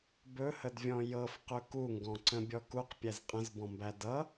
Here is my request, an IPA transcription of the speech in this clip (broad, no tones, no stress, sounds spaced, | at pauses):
b ɵ h ə d vʲ ɔ̃ j ɤ f q ɵ k u ŋ ɡ ɔ̃ ǀ ə̃ bʲ ɔ k u q pʲ æ z qʼ ə̃ z b ɔ̃ m b æ d ʌ